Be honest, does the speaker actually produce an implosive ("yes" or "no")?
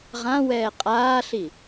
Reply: no